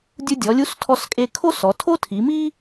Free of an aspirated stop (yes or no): no